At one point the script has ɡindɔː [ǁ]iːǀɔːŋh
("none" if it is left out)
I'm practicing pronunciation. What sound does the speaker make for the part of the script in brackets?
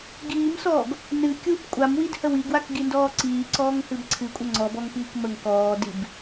ǀ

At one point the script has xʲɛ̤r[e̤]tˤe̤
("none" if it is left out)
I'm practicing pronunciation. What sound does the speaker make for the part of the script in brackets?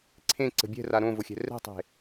ɛ̤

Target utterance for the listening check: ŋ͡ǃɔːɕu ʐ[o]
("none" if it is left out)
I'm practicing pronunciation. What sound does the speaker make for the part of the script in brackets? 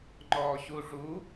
u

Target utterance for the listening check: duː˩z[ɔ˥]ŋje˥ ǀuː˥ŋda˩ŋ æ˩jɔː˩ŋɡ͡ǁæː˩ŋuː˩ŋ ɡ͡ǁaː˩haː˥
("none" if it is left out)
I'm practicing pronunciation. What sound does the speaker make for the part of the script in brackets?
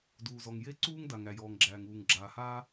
ɔ˩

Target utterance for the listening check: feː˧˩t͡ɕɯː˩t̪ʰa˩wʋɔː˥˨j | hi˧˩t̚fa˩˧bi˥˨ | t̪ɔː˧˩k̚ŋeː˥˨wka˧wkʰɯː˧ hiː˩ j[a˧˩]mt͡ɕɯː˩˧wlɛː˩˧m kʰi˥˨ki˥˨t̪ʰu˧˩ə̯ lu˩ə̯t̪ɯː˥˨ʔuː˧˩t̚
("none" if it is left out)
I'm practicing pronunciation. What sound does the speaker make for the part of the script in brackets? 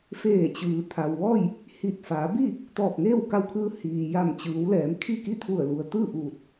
a˧˩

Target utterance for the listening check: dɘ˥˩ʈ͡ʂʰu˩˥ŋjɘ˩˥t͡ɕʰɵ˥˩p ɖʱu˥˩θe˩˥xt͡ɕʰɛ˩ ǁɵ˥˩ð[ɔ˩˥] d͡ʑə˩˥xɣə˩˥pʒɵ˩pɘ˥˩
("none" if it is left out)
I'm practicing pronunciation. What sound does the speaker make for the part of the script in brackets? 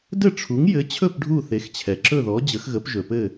ɔ˩˥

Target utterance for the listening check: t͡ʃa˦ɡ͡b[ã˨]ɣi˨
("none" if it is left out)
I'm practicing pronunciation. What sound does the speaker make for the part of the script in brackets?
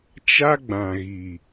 ã˨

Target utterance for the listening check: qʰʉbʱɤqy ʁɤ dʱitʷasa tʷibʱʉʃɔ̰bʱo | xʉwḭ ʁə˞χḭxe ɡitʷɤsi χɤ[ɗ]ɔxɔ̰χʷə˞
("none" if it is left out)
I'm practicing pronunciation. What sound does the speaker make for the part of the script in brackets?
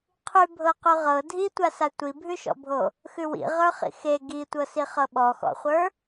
ɓ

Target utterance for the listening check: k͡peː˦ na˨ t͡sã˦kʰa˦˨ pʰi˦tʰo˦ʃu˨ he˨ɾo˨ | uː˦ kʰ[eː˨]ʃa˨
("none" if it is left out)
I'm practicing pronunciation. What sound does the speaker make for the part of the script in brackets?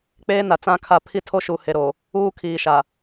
iː˨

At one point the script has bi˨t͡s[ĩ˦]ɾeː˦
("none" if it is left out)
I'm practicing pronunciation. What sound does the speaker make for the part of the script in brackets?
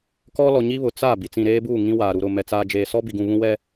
ĩ˨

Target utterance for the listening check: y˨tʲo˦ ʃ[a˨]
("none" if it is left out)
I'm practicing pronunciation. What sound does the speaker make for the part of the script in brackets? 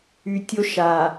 a˨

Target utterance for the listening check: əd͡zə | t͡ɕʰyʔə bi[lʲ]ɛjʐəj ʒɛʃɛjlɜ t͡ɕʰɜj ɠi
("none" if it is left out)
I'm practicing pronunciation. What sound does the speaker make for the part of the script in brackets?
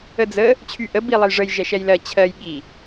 lˠ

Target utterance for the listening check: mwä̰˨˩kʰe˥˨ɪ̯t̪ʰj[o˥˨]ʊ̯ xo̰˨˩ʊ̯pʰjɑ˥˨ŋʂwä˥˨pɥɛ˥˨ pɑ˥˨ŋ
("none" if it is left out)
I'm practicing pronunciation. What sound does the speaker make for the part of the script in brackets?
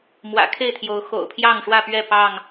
o˨˦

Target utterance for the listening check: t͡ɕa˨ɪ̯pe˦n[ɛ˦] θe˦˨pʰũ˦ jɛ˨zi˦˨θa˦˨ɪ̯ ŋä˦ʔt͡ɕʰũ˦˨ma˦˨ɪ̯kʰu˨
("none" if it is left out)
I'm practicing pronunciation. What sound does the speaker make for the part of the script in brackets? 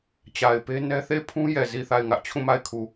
ɛ˦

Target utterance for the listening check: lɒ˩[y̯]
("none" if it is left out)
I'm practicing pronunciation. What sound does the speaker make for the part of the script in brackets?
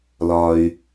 y̯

